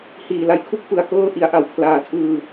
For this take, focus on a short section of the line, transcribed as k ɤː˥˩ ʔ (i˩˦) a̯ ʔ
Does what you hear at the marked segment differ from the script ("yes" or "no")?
no